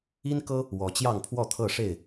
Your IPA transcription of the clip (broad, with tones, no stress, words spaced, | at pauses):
i˦nkɤ˦ | wɔ˨˦t͡ɕjɑ˥˨ŋpʰwɔ˥˨t̪ʰɤ˥˨ ʂe˥˨ɪ̯